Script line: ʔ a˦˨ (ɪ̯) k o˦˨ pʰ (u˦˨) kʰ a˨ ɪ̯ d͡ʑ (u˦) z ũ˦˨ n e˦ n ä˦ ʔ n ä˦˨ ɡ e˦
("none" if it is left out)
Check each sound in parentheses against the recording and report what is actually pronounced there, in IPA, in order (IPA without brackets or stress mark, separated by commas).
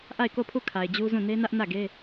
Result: ɪ̯, u˦˨, u˦